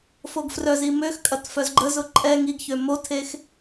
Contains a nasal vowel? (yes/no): no